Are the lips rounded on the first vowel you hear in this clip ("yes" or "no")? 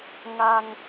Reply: no